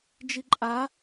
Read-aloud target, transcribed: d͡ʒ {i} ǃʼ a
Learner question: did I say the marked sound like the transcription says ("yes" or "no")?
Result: yes